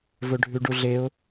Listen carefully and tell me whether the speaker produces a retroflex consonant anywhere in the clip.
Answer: yes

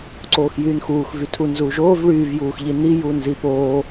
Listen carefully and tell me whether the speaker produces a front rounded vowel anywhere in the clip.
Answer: yes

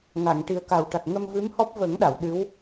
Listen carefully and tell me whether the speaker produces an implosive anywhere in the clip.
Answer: yes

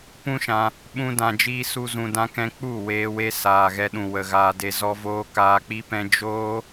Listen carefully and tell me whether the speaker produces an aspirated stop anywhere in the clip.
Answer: no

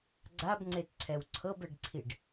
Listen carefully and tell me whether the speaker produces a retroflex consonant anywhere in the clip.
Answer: yes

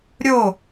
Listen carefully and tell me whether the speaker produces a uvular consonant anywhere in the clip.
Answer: no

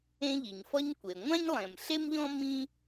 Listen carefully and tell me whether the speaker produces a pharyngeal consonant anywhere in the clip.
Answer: no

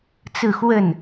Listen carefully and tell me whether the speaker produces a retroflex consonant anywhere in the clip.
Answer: no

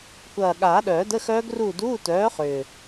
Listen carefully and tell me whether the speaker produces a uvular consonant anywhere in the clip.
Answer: yes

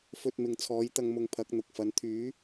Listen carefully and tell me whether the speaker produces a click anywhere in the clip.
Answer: no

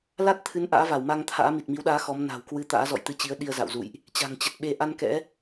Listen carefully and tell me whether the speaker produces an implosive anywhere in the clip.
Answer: yes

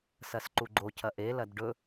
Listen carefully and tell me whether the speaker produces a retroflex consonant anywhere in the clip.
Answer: yes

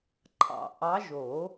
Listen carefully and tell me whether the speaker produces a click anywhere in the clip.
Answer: yes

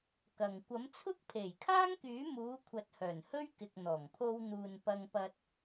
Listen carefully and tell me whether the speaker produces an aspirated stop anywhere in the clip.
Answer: yes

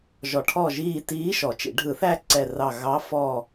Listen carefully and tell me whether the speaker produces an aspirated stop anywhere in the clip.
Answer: yes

